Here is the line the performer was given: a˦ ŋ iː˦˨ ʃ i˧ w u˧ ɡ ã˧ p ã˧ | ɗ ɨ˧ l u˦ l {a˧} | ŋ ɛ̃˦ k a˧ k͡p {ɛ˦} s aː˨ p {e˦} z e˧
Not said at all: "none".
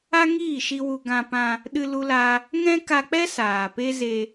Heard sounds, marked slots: a˦, ɛ˦, e˦

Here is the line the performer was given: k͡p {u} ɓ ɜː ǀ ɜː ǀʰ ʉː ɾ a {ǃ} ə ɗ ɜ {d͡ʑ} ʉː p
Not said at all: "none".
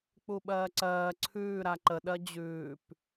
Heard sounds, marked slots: u, ǃ, d͡ʑ

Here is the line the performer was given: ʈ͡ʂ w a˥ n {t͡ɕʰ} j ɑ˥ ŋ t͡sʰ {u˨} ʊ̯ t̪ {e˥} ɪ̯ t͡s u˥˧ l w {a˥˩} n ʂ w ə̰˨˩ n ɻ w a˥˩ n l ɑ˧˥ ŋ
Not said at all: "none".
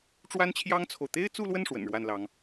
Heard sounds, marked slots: t͡ɕʰ, o˨, e˥, ə˥˩

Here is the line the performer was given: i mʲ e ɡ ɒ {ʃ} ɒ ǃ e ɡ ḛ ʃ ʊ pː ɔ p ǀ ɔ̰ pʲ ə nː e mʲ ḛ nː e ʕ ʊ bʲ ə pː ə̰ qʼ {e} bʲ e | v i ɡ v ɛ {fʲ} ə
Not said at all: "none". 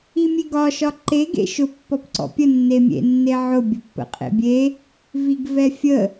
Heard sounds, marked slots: ʃ, ḛ, fʲ

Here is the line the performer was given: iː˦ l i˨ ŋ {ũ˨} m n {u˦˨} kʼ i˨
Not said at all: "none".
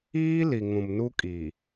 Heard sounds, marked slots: ũ˨, u˦

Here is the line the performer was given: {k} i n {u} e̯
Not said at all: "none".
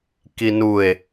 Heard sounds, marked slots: k, u

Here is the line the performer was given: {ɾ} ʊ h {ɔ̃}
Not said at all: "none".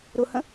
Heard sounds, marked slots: ɾ, ə̃

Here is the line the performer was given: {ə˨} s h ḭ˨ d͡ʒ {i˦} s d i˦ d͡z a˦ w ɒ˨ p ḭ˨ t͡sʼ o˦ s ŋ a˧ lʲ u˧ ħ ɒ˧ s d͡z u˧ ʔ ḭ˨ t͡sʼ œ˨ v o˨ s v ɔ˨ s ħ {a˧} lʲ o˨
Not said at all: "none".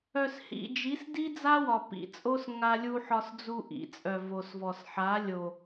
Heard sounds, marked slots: œ˨, i˨˦, a˨˦

